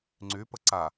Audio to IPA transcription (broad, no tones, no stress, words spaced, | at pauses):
ŋ͡ǀypə ǀa